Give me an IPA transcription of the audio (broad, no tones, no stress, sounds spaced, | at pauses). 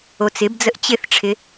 o t͡s ɪ b d͡z ə ʔ t͡ɕ ɪ θ ʈ͡ʂʰ ɪ